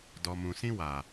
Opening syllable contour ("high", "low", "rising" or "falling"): low